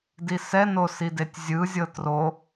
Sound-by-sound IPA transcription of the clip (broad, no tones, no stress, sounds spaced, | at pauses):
d i s ɛ n o s i d e tʲ zʲ ɯ zʲ ɤ t r o